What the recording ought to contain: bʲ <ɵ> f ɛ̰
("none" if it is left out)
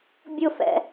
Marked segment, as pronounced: ʊ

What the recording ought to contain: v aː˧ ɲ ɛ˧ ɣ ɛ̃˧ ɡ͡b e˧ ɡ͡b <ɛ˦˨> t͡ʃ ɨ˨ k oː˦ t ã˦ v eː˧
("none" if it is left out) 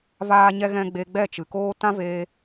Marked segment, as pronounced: ɛ˦˨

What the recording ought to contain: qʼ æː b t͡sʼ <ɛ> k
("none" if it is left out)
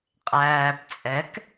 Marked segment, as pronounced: ɛ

